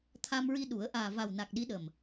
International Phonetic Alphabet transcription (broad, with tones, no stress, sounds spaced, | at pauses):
t̪ʰ a˧ m ɹ i˧ ɗ u˨˩˦ ə̯ ʔ aː˨˩ v a˨˩ w n a˨˩ k̚ ɗ i˧˥ ɗ ə˨˩ m